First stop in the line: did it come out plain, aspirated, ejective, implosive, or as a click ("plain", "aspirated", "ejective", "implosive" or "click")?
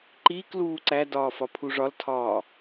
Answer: click